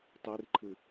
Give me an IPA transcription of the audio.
tˤ i r ǃʰ ɨ

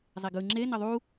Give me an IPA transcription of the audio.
zˤ e ɡ ɯ ŋ͡ǁ e n ʌ ðˤ u

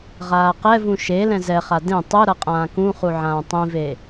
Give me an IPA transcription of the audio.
ʁ aː q ɛ v ũ ʃ e l ɛ̃ z ɛ χ a d ẽ tˤ ɯ ɾ ʌ qʼ ãː k ũ χ u ʕ ãː tˤ ĩ v e

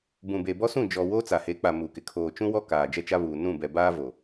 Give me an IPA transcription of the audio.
b ũ˨ b e˨ b ɔ˦ s ũ˦˨ d͡ʒ ɔ˨ w oː˦ t͡s a˨ h e˨˦ k͡p a˨ m u˨ k ɪ˨ kʰ oː˨ t͡ʃ ũ˦ w ɔ˦ k aː˨ d͡ʒ ɛ˦ t͡ʃ a˦ β uː˨ n ũ˦˨ b ɛ˨ b aː˦ v o˨

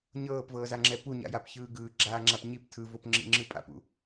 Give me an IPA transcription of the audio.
ɲ ɤː p v ɤː z a ŋ͡ǁ ɛ p u ɲ a̰ j a p ç ɯː ɡ ɯː ɡ͡ǁ aː ŋ͡ǁ a p ɲ i p tʰ ɯ v o p ŋ͡ǁ ḭ ŋ͡ǁ ɯ pʼ a̰ p ṵ

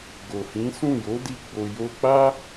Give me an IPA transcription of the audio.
ɡ o˨ h ĩ˨˦ s ũ˦˨ j o˨˦ d i˧ ɡ͡b o˧ j o˧ k͡p a˦

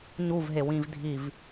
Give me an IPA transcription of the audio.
ɲ u v ɦ e w ĩ v dʱ i v

